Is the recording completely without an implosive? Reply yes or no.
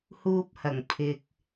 yes